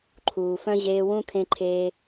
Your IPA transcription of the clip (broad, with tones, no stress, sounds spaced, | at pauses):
ǃʰ uː˨ f œ̃˦ ʑ eː˧ w ũ˦ kʰ ẽ˦ ǃʰ eː˦